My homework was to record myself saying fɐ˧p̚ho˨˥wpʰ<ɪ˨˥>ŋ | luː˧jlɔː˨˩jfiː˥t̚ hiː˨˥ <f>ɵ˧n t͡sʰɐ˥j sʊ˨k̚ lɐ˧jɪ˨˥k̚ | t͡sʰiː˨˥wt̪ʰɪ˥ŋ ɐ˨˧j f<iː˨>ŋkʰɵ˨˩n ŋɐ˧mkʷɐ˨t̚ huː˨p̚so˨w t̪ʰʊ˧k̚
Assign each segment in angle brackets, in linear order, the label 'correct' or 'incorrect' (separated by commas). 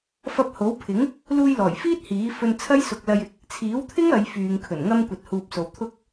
correct, correct, incorrect